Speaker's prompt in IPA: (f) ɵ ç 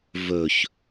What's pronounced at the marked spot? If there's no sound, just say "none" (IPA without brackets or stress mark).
v